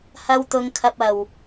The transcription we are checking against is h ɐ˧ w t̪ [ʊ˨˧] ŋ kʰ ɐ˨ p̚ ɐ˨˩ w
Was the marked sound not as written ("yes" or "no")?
no